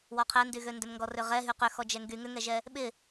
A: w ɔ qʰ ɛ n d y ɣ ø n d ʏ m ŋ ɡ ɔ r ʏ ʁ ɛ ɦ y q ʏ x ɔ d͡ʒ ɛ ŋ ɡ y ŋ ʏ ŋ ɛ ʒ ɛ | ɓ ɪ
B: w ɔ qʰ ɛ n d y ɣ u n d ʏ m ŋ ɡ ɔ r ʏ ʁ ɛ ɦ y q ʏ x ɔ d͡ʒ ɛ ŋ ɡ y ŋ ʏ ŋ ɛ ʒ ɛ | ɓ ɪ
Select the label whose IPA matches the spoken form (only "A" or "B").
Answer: A